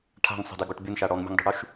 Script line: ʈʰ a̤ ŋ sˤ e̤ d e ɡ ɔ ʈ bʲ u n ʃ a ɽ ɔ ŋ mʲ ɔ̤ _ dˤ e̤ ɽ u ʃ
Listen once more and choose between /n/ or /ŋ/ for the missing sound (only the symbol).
ŋ